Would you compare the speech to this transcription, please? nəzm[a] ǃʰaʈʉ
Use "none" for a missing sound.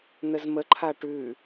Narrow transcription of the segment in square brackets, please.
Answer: ə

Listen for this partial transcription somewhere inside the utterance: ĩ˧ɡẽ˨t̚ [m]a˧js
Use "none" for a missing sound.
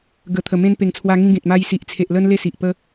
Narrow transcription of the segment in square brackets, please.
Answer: m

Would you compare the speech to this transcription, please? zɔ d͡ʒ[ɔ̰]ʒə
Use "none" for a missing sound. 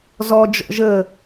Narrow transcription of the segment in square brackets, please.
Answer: ɔ̰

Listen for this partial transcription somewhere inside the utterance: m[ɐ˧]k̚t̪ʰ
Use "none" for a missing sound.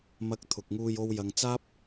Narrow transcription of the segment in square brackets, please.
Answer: ɐ˧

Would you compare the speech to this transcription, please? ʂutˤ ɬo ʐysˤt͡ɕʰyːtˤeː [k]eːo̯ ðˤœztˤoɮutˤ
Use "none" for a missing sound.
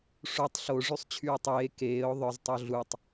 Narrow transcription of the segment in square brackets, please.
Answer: k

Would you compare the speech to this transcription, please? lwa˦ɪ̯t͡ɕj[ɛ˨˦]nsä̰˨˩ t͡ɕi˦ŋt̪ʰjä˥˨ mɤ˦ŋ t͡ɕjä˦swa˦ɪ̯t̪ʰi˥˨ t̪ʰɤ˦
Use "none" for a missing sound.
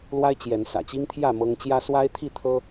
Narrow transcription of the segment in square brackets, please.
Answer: ɛ˨˦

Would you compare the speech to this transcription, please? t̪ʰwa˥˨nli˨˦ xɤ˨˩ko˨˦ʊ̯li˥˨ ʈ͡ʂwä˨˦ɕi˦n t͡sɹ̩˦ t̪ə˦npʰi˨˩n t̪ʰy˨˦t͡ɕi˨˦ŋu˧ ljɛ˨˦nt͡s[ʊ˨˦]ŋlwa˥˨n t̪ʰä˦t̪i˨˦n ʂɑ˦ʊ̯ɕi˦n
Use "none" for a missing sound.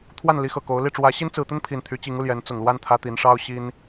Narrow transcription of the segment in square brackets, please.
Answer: ʊ˨˩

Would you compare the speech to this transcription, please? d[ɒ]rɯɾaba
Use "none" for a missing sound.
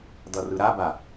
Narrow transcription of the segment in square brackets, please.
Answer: ʌ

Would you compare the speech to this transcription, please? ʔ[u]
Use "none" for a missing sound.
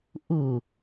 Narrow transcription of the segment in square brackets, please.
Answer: u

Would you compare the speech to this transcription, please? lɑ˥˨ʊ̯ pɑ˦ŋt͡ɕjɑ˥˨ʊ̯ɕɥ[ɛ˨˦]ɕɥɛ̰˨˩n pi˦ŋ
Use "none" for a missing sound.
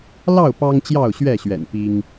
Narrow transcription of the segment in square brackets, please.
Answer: ɛ˥˨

